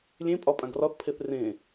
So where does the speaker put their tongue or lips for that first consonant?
tongue tip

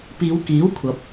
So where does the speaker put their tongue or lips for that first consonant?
lips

